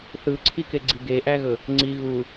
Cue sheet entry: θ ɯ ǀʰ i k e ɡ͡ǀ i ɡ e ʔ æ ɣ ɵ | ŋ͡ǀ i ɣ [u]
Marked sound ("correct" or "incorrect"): correct